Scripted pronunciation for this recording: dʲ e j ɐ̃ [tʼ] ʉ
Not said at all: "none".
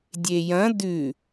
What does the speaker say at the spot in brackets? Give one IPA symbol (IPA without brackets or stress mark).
d